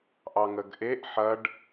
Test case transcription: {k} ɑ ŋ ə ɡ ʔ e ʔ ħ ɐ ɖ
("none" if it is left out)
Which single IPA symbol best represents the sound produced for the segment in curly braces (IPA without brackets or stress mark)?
ʔ